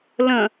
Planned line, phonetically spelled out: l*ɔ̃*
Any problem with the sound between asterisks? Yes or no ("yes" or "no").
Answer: yes